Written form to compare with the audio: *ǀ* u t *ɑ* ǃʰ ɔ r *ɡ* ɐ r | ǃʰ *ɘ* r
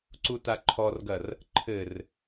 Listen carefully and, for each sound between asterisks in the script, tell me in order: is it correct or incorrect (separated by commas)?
correct, incorrect, correct, correct